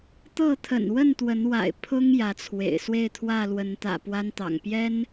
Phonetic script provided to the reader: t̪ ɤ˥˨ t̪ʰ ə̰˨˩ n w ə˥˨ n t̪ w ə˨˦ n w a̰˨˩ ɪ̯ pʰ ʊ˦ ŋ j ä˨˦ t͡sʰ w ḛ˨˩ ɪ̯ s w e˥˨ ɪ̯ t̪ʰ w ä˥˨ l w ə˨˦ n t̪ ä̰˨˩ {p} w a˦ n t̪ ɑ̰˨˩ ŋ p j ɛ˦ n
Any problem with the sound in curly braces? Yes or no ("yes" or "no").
no